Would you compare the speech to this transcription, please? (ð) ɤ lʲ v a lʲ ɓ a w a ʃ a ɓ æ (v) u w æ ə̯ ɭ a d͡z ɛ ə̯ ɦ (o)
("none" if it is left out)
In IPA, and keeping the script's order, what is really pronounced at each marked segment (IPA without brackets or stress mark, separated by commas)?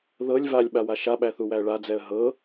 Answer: ð, θ, ɤ